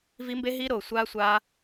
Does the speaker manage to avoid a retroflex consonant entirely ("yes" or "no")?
yes